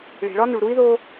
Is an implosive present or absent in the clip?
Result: absent